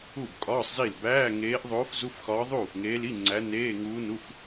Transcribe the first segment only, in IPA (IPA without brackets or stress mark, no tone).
u